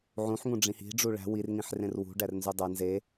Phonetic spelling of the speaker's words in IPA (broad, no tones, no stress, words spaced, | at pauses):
ʕũħ ŋũɖ͡ʐĩhi̤ ɖ͡ʐuɭæ̤ wir ŋĩħrẽrwṳ ɖærnzudˤæ nze